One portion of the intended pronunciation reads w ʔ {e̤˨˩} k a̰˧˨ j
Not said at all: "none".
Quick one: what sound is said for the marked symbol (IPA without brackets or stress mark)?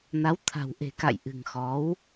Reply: e̤˨˩